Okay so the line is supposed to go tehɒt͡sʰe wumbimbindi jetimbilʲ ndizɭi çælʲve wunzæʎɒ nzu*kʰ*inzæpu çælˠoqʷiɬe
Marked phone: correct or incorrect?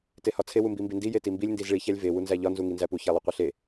incorrect